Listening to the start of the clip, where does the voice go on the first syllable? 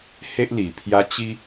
high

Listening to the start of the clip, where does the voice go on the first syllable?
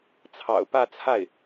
low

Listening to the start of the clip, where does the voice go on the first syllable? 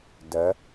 rising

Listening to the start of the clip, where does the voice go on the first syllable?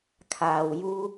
low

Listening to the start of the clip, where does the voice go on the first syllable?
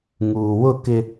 low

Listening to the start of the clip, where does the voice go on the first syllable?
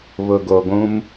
low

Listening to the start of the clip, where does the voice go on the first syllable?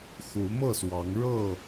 rising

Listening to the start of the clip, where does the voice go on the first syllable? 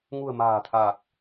low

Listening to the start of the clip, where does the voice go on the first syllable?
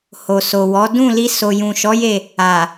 low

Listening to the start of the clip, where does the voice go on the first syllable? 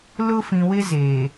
high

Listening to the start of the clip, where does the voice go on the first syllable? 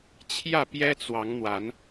falling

